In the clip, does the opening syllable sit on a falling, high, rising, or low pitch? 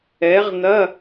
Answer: rising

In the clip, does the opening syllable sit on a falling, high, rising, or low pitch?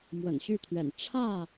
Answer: low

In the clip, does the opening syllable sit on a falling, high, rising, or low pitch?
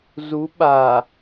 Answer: rising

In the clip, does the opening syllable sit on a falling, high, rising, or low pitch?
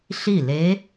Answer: falling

